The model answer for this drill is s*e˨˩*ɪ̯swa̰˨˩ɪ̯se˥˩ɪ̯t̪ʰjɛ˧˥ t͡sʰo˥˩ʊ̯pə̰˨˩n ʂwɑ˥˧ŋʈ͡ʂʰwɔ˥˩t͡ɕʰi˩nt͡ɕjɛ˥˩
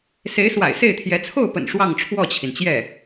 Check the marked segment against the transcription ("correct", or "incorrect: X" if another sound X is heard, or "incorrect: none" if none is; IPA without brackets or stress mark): incorrect: e˧˥